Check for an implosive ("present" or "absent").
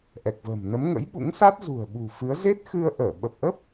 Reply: present